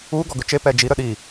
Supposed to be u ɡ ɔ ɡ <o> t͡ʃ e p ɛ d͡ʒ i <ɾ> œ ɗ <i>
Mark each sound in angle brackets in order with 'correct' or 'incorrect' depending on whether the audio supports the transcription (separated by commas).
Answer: incorrect, correct, correct